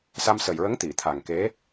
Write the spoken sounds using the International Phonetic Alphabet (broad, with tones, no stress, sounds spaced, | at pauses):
s a˧ m s ə˨˩ j ɹ ə˧˥ ŋ t̪ i˨˩˨ t̪ʰ a˨˩ ŋ k e˧˥